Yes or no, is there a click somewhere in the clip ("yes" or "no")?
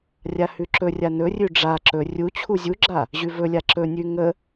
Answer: yes